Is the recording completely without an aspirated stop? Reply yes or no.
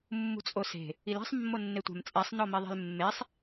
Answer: yes